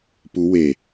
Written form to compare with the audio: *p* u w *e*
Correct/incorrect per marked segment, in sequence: correct, correct

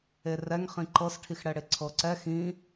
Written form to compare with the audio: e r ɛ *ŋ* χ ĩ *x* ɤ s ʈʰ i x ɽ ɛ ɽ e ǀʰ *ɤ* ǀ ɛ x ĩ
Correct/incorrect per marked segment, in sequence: correct, incorrect, correct

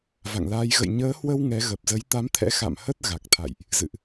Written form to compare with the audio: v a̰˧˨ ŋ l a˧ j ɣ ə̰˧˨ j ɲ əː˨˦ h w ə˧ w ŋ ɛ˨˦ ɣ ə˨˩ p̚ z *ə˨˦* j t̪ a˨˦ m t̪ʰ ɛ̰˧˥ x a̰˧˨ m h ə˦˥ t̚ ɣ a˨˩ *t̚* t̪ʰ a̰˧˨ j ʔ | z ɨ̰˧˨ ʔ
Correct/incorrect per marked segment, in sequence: correct, incorrect

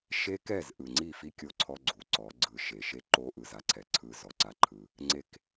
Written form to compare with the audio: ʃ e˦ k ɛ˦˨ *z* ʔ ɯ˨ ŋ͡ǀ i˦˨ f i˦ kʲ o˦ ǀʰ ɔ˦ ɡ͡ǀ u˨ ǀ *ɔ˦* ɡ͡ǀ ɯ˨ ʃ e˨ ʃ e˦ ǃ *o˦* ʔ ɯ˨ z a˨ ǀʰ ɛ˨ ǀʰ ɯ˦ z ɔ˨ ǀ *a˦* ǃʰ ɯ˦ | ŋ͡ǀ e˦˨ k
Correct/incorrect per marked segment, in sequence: correct, incorrect, correct, correct

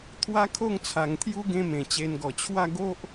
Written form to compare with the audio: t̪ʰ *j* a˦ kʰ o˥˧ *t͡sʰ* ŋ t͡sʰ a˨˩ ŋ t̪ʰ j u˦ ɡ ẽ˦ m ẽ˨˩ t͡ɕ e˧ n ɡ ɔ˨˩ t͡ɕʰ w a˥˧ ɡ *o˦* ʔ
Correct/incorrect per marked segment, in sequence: incorrect, incorrect, correct

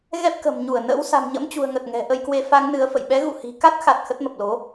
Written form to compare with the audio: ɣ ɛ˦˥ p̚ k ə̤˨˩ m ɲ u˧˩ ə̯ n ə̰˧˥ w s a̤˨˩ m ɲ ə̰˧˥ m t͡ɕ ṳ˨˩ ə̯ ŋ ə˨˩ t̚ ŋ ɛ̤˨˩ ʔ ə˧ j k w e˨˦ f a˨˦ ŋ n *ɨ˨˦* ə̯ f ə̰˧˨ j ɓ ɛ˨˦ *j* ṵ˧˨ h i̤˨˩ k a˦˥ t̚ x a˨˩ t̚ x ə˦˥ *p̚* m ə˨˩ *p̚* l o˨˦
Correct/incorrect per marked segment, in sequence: correct, incorrect, incorrect, correct

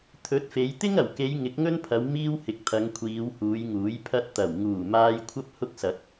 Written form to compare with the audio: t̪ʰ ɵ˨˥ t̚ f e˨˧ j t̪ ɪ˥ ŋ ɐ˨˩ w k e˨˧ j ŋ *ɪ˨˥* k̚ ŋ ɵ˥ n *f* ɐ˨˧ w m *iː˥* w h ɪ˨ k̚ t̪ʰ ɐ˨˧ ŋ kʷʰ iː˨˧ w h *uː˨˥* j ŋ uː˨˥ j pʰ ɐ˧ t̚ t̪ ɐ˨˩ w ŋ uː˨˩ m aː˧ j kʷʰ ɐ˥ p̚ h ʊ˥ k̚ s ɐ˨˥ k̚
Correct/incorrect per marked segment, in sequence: correct, incorrect, correct, incorrect

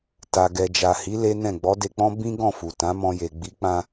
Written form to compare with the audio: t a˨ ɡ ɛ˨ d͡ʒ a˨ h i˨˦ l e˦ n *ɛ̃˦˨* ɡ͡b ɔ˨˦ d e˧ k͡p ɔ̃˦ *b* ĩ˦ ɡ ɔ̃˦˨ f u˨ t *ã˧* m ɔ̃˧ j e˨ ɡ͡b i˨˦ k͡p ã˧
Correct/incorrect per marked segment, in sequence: correct, correct, incorrect

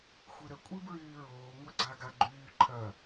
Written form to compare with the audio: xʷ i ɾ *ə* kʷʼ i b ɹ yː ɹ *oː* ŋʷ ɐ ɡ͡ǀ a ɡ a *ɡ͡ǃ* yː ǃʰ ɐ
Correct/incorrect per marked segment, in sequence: correct, correct, correct

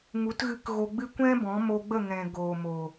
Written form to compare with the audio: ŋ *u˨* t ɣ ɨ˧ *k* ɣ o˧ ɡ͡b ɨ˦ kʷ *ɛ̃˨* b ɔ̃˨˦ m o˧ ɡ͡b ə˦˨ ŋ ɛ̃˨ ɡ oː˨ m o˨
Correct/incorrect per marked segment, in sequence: incorrect, correct, incorrect

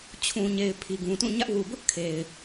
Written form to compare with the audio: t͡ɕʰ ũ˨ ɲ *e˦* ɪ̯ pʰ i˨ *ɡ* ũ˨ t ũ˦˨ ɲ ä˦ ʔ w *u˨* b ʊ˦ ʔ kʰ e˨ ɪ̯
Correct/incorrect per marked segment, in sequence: incorrect, correct, correct

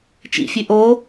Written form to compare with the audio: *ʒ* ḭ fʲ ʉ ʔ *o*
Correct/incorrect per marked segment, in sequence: incorrect, correct

